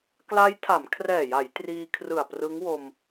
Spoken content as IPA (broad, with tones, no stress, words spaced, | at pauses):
kla˦˥jtʰa˩˦mkʰrɛː˨˩ja˩˦j triː˧ kʰrɯ˨˩a̯ prɯ˦˥ŋwo˧m